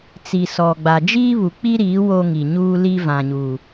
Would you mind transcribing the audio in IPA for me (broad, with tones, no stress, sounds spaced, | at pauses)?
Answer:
t͡s i˨ s ɔ˨ ɡ͡b a˨ d͡ʒ iː˦ β u˨ k͡p i˦ ɾ iː˨˦ w o˦ ŋ i˨ ɲ uː˦ l i˦ v ã˨ ɲ uː˨